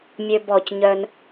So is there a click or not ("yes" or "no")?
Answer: no